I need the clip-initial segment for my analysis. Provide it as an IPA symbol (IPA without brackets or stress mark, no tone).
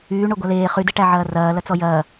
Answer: yː